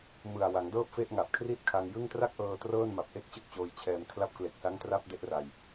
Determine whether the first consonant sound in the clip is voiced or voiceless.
voiced